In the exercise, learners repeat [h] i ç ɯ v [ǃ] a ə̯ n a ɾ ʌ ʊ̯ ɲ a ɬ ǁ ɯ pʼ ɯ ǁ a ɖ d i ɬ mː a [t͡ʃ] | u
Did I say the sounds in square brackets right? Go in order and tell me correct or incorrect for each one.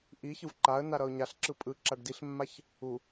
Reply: incorrect, correct, incorrect

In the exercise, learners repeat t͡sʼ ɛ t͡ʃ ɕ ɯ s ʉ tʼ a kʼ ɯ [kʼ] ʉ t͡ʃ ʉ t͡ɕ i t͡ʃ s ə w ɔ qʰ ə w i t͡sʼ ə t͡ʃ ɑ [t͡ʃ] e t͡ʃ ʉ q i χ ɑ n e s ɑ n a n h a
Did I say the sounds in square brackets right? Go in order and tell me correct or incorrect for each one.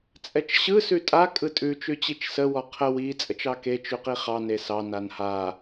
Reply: incorrect, incorrect

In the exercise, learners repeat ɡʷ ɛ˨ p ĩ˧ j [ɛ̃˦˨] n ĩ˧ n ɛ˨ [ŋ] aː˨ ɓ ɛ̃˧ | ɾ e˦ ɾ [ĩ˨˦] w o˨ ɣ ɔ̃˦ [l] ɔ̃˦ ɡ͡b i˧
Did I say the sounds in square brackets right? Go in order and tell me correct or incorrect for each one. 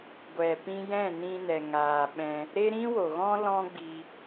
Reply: correct, correct, incorrect, correct

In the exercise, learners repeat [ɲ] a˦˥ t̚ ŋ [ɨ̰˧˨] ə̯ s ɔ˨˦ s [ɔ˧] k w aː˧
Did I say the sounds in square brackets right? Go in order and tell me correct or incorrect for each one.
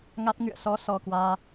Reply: incorrect, correct, correct

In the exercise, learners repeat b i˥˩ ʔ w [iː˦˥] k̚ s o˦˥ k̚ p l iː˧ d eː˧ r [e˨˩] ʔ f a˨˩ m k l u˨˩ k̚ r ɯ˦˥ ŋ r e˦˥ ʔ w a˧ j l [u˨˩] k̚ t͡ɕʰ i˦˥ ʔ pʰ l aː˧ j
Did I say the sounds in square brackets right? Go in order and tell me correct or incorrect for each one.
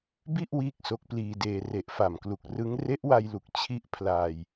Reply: incorrect, correct, correct

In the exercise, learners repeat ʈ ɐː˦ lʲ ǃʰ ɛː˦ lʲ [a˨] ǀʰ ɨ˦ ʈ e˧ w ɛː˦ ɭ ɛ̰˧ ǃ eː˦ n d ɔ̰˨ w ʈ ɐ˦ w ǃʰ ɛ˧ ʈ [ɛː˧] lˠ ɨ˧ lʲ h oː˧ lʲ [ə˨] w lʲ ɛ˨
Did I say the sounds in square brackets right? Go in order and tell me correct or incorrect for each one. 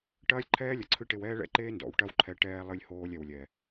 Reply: incorrect, correct, incorrect

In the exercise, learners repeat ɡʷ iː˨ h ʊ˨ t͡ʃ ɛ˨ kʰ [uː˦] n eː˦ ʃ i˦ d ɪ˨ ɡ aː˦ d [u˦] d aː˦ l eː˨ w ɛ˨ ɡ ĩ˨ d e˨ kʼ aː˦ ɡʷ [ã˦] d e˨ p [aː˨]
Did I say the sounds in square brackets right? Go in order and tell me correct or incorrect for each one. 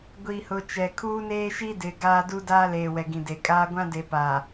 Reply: correct, correct, correct, correct

